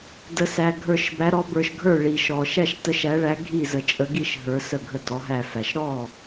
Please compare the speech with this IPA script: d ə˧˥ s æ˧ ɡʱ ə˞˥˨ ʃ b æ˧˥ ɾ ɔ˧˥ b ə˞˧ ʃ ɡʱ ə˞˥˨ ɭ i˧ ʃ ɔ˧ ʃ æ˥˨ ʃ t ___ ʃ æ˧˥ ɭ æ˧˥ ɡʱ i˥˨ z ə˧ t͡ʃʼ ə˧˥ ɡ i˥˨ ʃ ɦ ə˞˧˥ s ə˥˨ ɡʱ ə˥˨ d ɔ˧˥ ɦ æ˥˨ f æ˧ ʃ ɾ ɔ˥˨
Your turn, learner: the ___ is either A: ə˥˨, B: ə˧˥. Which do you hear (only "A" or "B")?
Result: B